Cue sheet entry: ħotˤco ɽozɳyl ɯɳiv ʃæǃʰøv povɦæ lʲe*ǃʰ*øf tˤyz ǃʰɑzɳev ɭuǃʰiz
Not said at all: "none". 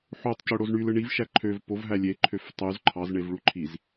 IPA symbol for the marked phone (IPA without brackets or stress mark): ǃʰ